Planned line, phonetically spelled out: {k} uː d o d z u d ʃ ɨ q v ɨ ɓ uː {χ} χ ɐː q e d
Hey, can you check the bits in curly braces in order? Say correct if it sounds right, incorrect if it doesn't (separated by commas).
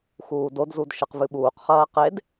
incorrect, incorrect